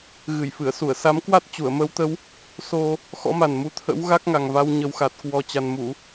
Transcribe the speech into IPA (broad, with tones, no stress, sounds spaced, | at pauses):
ɣ ɨ˧˩ j f ɨ˧˩ ə̯ s u˧˩ ə̯ s a˨˦ m k w a˦˥ t̚ t͡ɕ u˧˩ ə̯ m ə˨˦ w t̪ ə˨˦ w | s o˧ | x ɔ̰˧˥ m a˨˩ n m u˨˦ t̪ʰ ə̰˧˥ w ɣ a˦˥ k̚ ŋ a˨˩ ŋ v a˧ w ɲ ə˨˩ w x a˨˩ t̚ k w ɔ˨˩ t͡ɕ a˨˩ n m u˧˩˨